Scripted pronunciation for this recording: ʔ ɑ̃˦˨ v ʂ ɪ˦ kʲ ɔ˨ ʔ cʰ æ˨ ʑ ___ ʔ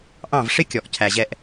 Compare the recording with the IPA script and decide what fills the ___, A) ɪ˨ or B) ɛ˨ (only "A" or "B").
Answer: B